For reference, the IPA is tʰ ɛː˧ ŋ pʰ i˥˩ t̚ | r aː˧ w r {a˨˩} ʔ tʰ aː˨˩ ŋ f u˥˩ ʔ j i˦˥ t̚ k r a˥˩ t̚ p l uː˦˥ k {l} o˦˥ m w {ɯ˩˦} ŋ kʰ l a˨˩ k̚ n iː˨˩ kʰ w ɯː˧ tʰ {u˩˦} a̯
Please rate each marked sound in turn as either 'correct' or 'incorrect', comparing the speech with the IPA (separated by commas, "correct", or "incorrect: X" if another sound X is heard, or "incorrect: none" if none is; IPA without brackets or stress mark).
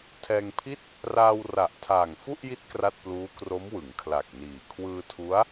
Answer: correct, incorrect: r, correct, incorrect: u˦˥